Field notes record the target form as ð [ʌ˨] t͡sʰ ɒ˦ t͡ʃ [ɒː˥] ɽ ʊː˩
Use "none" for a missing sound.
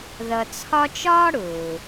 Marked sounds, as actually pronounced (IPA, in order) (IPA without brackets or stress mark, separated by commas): ʌ˨, ɒː˥